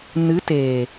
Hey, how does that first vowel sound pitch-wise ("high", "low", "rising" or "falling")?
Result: rising